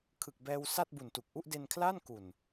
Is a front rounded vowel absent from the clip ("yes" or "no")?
yes